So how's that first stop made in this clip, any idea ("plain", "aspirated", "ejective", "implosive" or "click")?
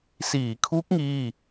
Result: aspirated